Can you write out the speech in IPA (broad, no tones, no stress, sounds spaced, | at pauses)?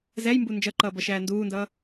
z ɛ j m b u n d͡ʒ ʌ ǃ ʌː b ʌ ʃ æː n d uː n d ʌː